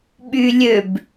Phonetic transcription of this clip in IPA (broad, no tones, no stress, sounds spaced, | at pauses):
ɓ y lʲ ø b